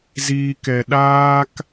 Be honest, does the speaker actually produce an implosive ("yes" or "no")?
yes